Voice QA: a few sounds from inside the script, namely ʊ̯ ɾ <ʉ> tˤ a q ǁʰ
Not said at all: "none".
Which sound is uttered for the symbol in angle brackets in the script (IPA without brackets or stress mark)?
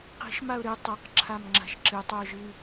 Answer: ɨ